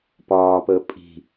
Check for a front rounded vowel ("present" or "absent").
absent